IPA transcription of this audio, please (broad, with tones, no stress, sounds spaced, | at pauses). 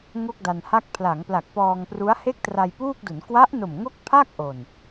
ŋ o˥˩ k̚ d a˧ n h a˥˩ k̚ pʰ l a˩˦ ŋ p l a˨˩ k̚ p ɔː˧ ŋ p r u˦˥ a̯ h e˥˩ k̚ t r a˧ j p uː˥˩ k̚ d u˩˦ n k w a˦˥ ʔ n o˨˩ m ŋ o˥˩ k̚ pʰ a˥˩ k̚ ʔ o˨˩ n